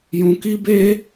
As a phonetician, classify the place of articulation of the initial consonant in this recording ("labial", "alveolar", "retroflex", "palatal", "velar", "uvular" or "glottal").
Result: palatal